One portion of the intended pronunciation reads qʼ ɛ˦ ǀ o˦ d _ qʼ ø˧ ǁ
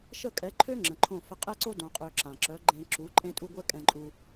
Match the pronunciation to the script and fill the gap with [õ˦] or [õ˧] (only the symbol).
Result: õ˧